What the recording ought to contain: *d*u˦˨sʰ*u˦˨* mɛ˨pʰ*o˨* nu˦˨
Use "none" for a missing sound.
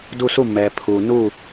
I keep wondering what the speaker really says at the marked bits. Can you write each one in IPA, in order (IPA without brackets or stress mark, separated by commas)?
d, u˦˨, u˨